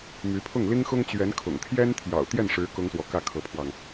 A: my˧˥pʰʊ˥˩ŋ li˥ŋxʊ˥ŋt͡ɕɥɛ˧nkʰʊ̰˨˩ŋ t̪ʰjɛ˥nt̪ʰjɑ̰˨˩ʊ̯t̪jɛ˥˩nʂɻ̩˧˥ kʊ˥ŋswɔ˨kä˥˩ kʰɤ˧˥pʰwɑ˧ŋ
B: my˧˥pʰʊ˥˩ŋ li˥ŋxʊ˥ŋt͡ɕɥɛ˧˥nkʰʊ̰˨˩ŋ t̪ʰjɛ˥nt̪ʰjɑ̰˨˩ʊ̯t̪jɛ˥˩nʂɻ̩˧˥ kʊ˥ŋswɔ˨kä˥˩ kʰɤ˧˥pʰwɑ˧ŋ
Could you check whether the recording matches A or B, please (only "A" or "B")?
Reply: B